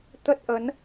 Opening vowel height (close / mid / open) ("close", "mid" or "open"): mid